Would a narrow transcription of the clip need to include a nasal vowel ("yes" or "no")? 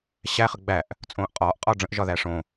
yes